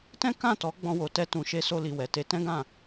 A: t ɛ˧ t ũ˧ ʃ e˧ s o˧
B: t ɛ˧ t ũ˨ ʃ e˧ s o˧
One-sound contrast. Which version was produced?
B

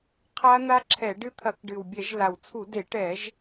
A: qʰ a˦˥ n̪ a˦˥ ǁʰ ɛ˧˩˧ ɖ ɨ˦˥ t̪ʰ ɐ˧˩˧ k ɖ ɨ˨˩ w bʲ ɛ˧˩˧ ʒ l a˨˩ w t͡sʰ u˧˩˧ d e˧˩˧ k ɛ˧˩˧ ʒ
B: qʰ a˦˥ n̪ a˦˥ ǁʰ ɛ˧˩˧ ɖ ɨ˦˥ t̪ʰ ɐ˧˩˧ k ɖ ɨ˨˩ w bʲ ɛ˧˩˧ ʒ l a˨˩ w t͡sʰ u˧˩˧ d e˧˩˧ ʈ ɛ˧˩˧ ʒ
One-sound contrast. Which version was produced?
B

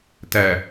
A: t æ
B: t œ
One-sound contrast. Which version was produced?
A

